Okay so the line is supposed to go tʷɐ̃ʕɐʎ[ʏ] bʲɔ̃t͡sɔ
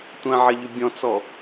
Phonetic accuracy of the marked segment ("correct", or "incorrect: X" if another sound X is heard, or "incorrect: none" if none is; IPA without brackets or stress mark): correct